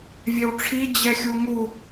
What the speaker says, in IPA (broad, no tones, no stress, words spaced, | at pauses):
vʲewʈ͡ʂʰi d͡ʑɛxʲuŋu